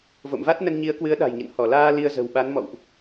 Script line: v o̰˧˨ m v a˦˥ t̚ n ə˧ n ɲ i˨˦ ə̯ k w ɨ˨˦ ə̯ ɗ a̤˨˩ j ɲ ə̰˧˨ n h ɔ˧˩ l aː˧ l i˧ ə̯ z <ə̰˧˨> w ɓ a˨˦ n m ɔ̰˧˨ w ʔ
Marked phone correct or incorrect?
incorrect